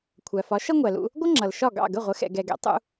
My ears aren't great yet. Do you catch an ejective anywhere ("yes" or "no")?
no